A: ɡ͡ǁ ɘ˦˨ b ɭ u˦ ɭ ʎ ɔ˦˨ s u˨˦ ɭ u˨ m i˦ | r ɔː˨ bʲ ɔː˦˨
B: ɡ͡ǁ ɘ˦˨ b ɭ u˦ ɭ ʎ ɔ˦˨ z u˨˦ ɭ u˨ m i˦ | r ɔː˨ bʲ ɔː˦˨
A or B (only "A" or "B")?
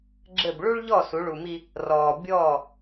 A